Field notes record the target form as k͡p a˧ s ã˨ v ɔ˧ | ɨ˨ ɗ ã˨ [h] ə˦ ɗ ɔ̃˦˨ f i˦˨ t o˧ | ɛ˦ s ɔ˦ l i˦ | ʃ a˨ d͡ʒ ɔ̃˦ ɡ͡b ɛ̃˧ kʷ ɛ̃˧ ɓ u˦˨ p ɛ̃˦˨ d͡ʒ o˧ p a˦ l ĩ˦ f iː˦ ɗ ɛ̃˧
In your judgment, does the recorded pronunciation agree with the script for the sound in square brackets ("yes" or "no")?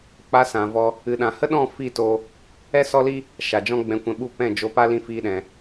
yes